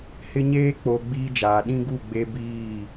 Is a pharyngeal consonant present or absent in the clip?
absent